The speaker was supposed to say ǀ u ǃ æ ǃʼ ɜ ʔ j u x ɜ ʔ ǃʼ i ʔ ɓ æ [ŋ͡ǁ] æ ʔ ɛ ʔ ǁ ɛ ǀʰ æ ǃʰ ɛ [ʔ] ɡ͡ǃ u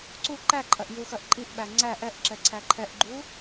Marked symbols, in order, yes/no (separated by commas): no, yes